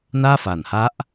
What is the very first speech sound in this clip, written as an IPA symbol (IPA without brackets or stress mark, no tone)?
n